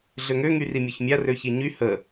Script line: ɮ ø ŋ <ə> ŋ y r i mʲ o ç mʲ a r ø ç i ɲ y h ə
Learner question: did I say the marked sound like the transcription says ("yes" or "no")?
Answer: no